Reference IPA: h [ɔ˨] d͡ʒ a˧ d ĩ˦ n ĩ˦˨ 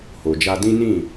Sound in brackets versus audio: incorrect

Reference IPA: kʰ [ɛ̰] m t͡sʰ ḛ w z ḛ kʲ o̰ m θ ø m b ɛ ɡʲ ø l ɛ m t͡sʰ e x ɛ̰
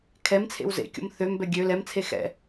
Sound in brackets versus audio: incorrect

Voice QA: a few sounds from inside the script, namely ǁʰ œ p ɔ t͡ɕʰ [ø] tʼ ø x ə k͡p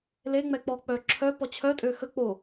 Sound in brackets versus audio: incorrect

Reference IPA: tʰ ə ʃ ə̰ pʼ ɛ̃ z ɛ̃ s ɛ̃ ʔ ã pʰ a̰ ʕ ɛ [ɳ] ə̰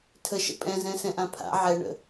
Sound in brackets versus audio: correct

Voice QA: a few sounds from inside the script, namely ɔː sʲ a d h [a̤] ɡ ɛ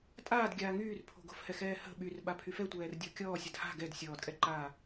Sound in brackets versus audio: correct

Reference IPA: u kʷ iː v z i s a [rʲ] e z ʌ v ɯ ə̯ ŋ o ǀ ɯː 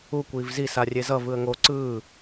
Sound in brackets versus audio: correct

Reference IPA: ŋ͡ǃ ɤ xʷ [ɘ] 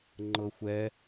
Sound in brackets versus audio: incorrect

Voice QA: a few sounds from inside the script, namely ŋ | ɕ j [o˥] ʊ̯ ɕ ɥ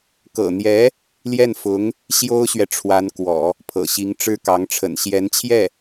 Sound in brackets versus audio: correct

